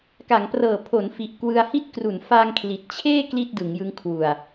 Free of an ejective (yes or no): yes